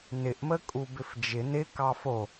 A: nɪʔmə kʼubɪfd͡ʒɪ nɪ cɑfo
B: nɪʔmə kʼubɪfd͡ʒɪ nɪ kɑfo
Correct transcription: B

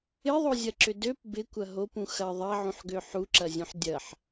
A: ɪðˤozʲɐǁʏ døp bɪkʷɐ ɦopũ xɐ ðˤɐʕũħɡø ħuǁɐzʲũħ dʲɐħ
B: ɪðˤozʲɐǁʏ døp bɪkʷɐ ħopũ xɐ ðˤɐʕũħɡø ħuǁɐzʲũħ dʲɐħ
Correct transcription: A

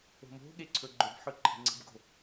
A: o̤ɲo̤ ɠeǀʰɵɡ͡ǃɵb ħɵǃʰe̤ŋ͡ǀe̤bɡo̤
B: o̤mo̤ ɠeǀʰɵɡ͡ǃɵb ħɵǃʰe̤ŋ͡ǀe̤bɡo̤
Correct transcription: B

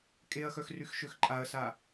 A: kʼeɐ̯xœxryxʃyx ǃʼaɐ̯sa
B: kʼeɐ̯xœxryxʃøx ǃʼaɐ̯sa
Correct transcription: B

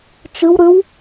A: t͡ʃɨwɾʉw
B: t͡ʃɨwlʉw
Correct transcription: A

